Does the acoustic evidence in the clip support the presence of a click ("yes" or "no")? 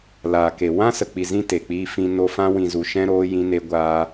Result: no